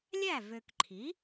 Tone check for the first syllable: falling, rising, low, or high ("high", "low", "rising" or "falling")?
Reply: falling